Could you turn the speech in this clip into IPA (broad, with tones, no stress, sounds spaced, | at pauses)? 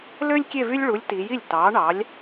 l ø˥ lʲ kʲ e˥˧ v y˥ lʲ ɭ u˨˥ lʲ t i˩˧ j i˥˩ lʲ t ɑ˨˥ ɳ ɑ˨˥ lʲ